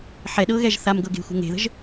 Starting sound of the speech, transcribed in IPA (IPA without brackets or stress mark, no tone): ħ